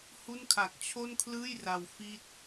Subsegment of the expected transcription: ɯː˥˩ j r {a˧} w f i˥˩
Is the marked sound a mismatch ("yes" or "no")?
no